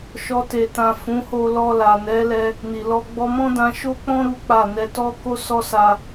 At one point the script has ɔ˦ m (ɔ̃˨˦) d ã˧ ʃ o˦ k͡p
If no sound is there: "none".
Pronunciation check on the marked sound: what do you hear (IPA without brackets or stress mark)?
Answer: ɔ̃˦